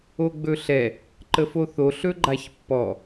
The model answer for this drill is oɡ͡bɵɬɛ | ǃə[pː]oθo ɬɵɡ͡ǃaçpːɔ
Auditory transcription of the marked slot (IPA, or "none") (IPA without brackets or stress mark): f